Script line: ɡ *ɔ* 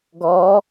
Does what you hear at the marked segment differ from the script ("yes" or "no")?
no